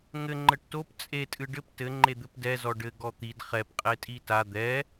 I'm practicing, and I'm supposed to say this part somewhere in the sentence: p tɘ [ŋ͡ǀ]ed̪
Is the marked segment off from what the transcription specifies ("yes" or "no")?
yes